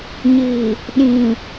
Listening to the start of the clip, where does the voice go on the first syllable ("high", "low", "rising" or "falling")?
low